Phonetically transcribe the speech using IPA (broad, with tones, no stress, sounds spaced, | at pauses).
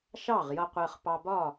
ʃ ɑ˥˨ ʁ j ʌ˧ qʷ ɜ˧ χ p ɑ˧ b ɒ˥˨